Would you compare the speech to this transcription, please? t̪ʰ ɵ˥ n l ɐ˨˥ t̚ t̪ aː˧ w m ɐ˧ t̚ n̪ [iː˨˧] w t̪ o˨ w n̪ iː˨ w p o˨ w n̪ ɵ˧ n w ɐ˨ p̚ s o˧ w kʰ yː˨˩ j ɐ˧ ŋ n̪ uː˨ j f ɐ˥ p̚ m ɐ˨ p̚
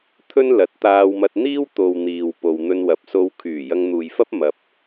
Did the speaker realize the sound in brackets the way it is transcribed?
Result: no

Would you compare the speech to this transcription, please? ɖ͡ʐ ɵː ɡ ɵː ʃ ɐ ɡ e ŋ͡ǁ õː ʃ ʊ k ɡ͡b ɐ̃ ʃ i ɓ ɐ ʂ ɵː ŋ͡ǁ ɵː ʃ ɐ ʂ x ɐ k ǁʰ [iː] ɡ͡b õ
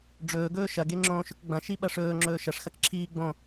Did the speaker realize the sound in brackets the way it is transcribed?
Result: yes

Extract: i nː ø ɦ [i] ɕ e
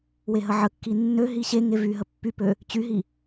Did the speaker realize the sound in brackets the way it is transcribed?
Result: yes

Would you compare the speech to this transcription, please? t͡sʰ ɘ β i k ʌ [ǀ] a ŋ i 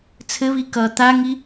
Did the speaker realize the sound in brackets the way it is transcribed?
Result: no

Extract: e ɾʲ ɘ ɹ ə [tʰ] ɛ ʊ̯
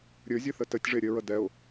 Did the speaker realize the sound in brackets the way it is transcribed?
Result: no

